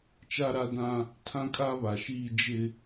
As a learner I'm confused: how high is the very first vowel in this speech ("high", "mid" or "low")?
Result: low